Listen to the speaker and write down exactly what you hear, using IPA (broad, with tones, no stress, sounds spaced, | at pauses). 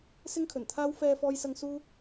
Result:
s ɪ˥ ŋ kʰ ɵ˨˩ n t̪ʰ aː˥ w f ɛː˧ f ɔː˧ j s ɐ˧ ŋ s uː˥